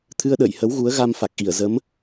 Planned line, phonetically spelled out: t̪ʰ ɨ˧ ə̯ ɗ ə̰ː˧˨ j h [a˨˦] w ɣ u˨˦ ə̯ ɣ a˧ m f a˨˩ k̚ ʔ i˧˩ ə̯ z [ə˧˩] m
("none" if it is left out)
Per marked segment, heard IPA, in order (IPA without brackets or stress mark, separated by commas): ə˨˦, ə˨˦